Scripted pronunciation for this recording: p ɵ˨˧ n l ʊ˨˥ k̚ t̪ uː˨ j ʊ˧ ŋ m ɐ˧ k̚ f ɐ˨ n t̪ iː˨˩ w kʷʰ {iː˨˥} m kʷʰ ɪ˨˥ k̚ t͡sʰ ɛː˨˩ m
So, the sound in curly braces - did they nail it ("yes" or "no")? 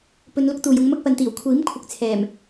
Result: yes